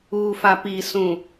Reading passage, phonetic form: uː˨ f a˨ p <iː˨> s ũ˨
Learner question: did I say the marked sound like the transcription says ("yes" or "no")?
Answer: yes